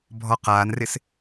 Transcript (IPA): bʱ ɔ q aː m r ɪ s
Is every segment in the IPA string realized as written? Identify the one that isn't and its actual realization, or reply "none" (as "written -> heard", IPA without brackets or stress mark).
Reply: m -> n